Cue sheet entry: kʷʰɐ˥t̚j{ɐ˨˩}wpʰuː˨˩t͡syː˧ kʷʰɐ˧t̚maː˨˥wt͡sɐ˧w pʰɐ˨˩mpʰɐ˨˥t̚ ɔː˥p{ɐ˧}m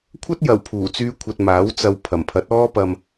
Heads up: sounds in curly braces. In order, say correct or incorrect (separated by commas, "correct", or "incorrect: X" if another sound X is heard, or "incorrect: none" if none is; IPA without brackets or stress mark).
correct, correct